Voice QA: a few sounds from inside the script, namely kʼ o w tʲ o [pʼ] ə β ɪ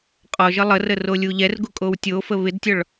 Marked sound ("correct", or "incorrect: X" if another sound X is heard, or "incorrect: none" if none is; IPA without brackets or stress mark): incorrect: f